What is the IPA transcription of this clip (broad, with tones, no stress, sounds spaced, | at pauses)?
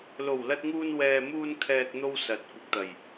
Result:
l o˨˩ w l ɐ˧ t̚ ŋ uː˧ n w ɛː˨ m uː˧ n kʰ ɛː˨ k̚ n̪ o˧ w s ɐ˨˥ t̚ kʷ ɐ˨ k̚ t̪ ɐ˨˩ j